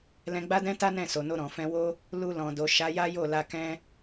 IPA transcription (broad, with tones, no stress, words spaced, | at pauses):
lɛ̃˧ɡ͡ba˦dɛ̃˦ta˦ nɛ̃˦˨so˨no˧ ɾɔ̃˨fɛ̃˧wo˦ | lu˧lɔ̃˨ do˨ʃa˨˦ja˦ jo˦˨la˧kɛ̃˦